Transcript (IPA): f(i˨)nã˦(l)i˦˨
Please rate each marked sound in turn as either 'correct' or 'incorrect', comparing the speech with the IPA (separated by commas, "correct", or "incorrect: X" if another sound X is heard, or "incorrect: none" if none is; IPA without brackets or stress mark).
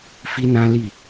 incorrect: i˦, correct